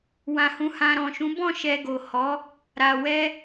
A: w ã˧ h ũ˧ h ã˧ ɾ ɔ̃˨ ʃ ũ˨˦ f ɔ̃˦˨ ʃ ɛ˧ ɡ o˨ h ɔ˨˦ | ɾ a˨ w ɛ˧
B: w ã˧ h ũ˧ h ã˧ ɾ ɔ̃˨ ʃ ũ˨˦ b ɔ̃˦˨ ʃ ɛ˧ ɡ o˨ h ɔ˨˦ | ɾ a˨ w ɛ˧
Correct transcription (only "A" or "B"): B